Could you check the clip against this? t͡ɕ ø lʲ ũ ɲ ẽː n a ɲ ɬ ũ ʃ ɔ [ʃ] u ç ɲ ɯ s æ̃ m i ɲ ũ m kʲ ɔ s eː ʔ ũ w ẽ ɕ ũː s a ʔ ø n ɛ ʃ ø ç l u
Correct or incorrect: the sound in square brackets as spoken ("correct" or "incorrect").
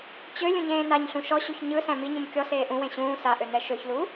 incorrect